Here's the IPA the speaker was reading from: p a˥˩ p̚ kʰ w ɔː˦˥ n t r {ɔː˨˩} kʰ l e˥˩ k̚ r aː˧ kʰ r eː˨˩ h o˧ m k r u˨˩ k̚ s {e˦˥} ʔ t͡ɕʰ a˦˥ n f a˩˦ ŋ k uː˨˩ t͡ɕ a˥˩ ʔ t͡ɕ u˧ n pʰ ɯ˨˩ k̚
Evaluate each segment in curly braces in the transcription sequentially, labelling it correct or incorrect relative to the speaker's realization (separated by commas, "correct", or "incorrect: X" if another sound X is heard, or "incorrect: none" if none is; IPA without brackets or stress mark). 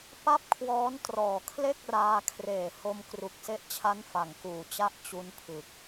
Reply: correct, correct